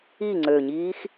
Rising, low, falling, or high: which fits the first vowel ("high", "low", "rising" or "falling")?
falling